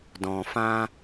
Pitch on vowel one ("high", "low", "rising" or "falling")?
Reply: low